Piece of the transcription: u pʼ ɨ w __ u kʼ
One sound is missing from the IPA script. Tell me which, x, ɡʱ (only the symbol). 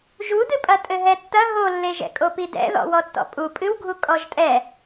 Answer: ɡʱ